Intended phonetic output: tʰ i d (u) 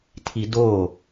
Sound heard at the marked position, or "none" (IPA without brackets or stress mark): o